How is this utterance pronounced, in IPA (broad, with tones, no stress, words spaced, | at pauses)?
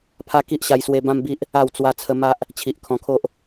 pʰa˦ ki˦ʔɕa˧jswe˧ bã˦mbi˦ʔ | a˥˧w t͡swa˧t͡sʰə˧ ma˦ʔ | t͡ɕʰi˨ʔkʰɔ̃˧kʰo˦ʔ